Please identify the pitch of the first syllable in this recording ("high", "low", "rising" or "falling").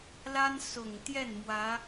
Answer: high